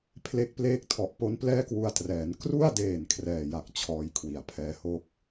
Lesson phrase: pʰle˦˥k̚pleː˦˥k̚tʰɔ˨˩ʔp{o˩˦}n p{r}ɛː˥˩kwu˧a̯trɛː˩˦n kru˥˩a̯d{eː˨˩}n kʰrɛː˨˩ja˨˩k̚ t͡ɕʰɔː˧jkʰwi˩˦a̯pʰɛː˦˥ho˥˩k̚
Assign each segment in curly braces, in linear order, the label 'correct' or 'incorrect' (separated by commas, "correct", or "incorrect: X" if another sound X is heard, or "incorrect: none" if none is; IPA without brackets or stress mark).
incorrect: o˦˥, incorrect: l, correct